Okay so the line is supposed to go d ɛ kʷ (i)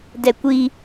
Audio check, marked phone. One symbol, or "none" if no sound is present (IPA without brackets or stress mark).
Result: i